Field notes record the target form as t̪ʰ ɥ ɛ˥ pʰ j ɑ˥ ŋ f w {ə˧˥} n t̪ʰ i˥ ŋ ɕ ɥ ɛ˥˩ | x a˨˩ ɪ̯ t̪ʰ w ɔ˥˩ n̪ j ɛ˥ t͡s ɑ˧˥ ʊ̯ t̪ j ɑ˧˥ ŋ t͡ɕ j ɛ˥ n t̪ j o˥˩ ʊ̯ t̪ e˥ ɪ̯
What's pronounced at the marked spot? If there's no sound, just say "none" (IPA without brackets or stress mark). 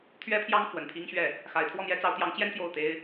ə˨˩